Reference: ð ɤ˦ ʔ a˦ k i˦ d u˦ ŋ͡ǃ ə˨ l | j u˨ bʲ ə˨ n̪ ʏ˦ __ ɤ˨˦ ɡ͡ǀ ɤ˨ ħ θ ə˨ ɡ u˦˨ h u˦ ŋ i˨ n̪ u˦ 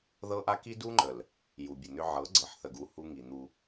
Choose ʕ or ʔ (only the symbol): ʕ